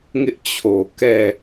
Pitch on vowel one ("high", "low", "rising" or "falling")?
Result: high